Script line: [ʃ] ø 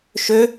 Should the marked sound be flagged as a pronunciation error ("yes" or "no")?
no